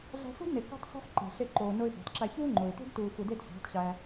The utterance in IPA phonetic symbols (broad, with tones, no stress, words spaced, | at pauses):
ɮæ̤˧sṳ˦dne˨ kṳ˧tˤsṳ˧ħ ǃe̤˨ ɬe˧ǃoː˨no˧ɪ̯ bæ̤˨tˤ ǁæ˧ çuː˦ ŋ͡ǃo˨ɪ̯t̪ṳ˦d tuː˨fu˨de˧d sæ̤˨˦tˤɕæː˧